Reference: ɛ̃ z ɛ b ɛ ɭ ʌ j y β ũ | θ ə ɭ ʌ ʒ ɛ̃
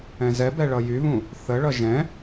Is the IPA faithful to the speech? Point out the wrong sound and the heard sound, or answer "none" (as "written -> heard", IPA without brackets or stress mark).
none